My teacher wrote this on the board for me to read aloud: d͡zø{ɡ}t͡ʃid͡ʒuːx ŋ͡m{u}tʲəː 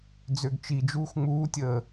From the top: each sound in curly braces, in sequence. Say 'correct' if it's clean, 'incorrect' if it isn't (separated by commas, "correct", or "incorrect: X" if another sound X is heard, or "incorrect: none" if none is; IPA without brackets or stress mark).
correct, incorrect: uː